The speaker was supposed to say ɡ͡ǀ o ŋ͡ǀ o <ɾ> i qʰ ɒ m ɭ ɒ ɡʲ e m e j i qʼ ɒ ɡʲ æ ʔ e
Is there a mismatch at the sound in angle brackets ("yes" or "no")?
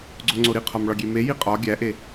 no